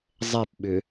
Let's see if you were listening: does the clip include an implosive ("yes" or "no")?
yes